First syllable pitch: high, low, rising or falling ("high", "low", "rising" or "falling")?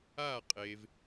falling